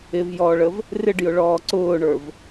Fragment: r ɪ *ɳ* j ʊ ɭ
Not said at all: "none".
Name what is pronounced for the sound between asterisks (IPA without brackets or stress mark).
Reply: ɖ